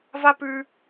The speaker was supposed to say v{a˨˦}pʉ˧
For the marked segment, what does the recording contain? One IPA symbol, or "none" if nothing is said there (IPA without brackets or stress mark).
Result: a˦